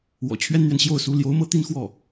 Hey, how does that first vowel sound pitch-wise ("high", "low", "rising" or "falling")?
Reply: low